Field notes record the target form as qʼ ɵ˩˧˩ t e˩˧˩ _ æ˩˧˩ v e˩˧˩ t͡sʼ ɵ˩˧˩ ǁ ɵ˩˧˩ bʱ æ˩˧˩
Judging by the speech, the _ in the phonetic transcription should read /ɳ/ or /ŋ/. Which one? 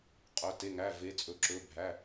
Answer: ŋ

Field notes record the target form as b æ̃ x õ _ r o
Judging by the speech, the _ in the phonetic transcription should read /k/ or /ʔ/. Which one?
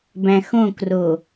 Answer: k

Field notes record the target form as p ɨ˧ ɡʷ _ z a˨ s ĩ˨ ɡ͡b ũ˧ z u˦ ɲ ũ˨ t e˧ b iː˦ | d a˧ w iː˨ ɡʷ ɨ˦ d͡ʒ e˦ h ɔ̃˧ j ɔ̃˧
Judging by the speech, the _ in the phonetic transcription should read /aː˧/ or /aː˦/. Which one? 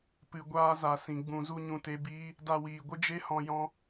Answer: aː˦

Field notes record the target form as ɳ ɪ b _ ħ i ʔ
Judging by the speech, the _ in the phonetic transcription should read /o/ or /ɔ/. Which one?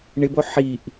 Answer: o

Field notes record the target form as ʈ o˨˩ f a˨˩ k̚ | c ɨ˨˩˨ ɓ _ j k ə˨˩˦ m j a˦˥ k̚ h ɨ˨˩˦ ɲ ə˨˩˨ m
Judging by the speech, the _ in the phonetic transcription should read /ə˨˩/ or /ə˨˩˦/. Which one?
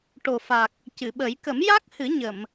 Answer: ə˨˩˦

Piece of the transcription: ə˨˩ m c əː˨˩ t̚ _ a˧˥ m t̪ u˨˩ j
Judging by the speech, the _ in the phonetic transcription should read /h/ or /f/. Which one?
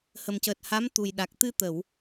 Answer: h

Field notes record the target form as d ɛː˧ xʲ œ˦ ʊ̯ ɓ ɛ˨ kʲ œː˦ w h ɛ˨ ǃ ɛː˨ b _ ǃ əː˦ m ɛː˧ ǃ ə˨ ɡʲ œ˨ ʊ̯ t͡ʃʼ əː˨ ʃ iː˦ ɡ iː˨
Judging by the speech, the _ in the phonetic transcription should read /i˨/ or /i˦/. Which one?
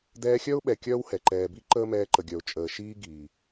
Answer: i˦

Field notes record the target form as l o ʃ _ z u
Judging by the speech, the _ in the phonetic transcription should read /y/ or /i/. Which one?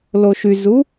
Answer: y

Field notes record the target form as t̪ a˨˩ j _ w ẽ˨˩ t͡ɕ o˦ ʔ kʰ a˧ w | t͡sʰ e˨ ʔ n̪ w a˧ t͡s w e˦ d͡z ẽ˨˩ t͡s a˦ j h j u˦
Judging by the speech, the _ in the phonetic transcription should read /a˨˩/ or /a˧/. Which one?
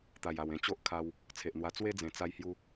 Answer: a˨˩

